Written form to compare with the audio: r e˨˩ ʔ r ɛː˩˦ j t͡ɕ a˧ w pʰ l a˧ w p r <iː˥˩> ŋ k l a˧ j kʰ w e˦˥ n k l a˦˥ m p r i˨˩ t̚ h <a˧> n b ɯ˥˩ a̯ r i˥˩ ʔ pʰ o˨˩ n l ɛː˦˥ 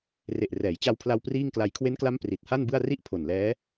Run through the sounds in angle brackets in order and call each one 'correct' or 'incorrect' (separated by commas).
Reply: correct, incorrect